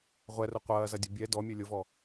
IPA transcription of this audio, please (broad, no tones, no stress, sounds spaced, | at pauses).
ʁʷ ɛ r ʊ qʷ ɐː z ɐ dʲ ʊ bʲ ɛ d ɔ mʲ ø lʲ ʊ v ɔ